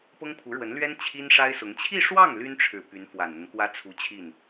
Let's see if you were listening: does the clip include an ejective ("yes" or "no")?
no